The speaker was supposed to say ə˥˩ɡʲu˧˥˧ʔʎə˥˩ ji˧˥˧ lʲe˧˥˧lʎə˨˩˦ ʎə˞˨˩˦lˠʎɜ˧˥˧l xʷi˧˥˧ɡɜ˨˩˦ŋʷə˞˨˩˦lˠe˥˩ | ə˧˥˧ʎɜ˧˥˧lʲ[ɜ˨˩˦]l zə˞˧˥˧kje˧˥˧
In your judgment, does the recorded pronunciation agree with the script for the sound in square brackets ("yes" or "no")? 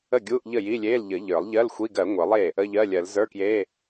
yes